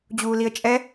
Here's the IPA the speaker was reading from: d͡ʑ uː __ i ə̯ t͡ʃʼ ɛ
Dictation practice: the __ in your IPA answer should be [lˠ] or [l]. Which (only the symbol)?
l